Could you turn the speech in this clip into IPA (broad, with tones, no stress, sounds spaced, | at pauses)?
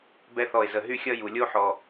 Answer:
b ɛ˦ θ ɔ˦˨ ɪ̯ z ə˦˨ ɦ y˦ xʲ ʌ˦ j u˨ lʲ o˦ ħ ɔ˨